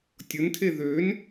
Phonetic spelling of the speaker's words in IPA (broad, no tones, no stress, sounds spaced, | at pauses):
tʲ ʊ n tʰ e ð ø n